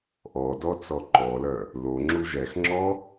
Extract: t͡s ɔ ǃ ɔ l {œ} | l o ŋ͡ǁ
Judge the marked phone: correct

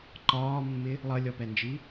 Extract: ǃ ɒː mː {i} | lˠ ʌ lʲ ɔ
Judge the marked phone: incorrect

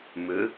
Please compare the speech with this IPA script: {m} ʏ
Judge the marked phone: correct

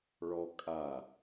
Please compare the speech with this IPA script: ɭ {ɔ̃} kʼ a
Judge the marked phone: incorrect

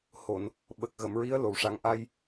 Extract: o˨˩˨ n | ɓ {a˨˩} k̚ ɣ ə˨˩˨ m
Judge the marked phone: incorrect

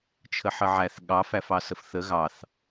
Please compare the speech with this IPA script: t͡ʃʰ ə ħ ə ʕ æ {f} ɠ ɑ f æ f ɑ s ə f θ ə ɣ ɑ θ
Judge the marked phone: incorrect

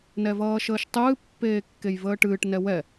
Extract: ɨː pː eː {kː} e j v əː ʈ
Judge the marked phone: correct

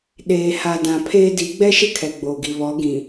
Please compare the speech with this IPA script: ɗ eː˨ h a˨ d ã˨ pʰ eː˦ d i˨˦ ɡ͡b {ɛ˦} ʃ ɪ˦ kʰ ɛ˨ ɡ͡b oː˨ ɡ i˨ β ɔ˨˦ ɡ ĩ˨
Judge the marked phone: correct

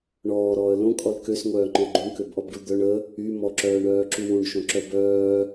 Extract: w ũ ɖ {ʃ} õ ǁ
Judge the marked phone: correct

